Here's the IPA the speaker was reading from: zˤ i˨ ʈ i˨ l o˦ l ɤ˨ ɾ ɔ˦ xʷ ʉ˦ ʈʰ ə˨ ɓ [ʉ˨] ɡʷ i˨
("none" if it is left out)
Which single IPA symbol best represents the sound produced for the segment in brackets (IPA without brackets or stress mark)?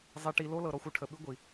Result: ʉ˦